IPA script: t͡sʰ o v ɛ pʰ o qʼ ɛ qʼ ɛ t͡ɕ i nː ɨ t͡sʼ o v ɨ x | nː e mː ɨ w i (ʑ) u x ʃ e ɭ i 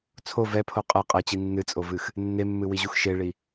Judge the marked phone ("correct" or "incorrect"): correct